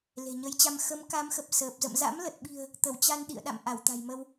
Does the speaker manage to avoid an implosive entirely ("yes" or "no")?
no